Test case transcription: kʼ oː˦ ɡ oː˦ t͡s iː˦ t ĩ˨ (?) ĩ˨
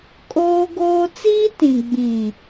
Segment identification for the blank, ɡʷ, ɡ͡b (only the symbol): ɡ͡b